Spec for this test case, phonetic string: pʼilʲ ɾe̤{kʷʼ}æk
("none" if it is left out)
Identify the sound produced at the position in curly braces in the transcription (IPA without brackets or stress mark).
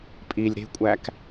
kʷʼ